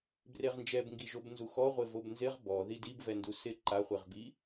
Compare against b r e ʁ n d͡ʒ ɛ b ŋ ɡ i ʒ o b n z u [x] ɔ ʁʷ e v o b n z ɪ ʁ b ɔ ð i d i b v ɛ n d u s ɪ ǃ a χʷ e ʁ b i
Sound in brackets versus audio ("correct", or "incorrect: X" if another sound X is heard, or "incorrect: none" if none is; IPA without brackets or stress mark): correct